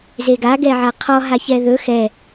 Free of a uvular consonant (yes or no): no